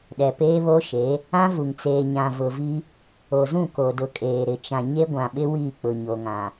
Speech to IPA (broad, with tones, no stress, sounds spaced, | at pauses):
ɗ ɛ˨ p eː˦ β o˦ ʃ e˨˦ | ã˦ v u˨ ŋ t͡s eː˨ ɲ ã˨ v ʊ˨ v i˦ | o˨ z ũ˦˨ k o˨ d ʊ˨ kʼ eː˨ ɾ ɪ˨ t͡ʃ ã˨ ɲ e˦ ɡʷ ã˨ ɓ ɪ˦ w i˦˨ k͡p ʊ˨ ɲ o˨ ŋ ã˨